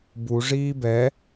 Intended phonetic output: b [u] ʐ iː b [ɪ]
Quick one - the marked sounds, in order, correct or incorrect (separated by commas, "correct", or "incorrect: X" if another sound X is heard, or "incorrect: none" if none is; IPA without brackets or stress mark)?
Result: correct, incorrect: ɛ